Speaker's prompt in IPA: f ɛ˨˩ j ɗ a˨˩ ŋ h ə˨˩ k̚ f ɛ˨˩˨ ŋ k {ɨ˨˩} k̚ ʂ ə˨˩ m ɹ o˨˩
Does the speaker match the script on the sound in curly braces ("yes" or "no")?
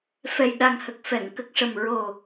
no